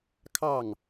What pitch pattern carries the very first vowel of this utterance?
falling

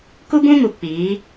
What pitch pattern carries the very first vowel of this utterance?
high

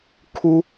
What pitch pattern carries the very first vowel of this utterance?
high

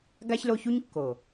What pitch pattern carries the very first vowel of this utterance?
high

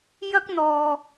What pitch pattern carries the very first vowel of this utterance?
high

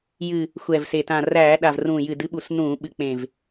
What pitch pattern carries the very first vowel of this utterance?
low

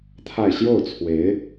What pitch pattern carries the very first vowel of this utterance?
falling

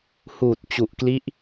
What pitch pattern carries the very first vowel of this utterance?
low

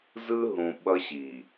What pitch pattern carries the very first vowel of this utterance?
high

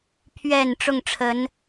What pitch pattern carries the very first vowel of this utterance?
low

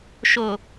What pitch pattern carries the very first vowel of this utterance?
low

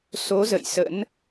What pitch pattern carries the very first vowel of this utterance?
rising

